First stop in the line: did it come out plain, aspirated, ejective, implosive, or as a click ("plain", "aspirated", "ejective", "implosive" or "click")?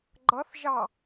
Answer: click